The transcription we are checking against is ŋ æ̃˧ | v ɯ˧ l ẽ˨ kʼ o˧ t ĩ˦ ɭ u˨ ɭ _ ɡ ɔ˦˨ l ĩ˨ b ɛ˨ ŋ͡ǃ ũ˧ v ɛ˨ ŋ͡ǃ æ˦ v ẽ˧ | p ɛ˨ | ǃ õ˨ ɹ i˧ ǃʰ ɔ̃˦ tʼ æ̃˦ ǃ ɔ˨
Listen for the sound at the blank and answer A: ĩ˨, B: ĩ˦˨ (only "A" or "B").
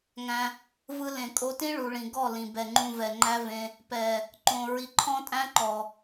A